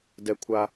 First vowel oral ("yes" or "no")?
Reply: yes